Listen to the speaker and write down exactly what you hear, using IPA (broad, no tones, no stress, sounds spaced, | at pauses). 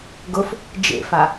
ɡ ʊ f | d͡ʒ ḛ f a